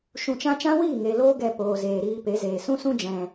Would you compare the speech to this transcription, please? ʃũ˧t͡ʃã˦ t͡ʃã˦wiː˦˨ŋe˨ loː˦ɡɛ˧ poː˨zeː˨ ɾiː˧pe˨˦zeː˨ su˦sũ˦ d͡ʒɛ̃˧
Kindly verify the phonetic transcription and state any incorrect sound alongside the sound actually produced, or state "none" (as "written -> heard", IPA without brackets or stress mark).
u˦ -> ũ˦